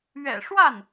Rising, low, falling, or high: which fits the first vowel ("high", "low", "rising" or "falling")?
low